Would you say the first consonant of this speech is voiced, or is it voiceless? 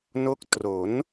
voiced